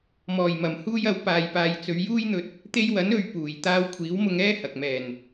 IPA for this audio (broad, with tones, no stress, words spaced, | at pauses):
mɔː˨˩jmɐ˨˩mhuː˧jɐ˨˥w paː˨jpaː˨jt͡sɵ˨˧ɥ juː˥jn̪ɵ˧t̚ | t̪e˧jwɐ˨˥n ɵ˧ɥ puː˨˩j t̪aː˧wkʷʰiː˨˥wmʊ˧ŋ ɛː˥hɐ˨k̚mɛː˨˩n